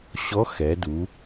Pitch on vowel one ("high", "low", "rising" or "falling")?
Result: rising